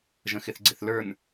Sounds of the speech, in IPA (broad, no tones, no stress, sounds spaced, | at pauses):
ʒ ə̃ x ɪ θ ɡ͡ǀ ɪ θ l ə˞ n